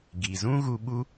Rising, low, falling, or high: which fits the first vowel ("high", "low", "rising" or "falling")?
low